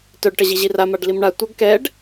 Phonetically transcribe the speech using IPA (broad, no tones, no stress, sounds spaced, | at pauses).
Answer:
t œ ɖ ʈ ə ʑ i ʑ i r a m a ɖ l i m ɳ a tʷ ɐ ɡ k ɛ ɖ